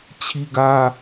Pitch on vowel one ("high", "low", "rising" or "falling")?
high